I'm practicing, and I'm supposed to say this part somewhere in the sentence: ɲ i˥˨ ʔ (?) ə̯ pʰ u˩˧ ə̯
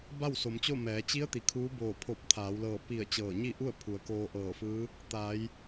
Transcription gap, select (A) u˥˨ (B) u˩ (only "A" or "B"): A